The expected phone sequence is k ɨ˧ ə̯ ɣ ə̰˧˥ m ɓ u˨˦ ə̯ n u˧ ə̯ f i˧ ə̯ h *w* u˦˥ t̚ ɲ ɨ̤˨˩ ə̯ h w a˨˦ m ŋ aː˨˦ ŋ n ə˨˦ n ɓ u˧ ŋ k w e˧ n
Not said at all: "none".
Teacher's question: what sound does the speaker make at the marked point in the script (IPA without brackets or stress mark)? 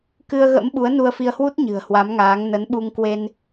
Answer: w